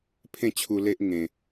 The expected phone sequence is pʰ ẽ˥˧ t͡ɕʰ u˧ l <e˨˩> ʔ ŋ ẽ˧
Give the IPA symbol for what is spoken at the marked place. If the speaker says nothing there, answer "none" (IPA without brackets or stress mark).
e˦